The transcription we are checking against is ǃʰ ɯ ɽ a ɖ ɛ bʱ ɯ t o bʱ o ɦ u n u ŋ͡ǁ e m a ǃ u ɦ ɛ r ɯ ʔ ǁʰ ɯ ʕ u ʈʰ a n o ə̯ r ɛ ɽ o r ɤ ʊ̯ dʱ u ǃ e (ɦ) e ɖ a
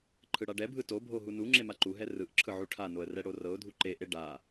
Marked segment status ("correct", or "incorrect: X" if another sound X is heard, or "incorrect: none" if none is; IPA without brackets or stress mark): incorrect: ʔ